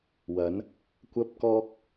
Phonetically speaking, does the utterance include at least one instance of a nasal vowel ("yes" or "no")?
no